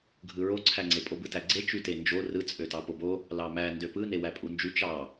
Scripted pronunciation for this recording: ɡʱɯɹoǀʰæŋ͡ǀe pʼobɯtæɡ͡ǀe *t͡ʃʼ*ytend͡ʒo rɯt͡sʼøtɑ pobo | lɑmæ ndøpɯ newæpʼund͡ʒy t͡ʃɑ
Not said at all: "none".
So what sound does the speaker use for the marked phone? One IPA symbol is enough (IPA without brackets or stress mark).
t͡ʃ